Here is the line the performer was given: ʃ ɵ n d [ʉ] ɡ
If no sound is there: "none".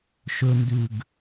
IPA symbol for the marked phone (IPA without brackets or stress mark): ʉ